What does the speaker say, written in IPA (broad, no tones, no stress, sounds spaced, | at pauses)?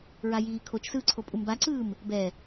ɹ a j iː kʰ o t͡ʃ s ɯː ǀʰ o pʼ u m b a ǀ ɯː m | b ɛ